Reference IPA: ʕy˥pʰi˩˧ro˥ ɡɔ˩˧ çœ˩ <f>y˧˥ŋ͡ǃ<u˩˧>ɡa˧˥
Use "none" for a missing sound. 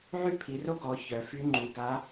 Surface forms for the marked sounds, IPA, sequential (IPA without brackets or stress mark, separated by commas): f, u˩˧